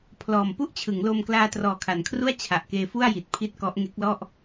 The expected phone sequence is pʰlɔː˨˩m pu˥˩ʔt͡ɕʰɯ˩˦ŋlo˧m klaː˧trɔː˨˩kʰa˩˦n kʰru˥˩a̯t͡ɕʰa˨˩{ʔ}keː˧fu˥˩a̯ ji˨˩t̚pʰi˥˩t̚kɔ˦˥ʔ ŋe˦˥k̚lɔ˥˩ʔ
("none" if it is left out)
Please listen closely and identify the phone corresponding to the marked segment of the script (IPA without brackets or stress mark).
ʔ